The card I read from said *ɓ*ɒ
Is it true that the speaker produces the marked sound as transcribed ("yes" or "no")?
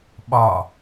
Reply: yes